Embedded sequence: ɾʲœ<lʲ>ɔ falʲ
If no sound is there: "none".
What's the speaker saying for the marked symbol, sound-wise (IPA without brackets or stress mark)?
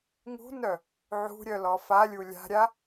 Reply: l